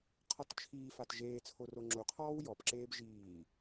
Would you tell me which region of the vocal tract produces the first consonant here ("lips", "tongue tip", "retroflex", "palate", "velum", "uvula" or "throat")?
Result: uvula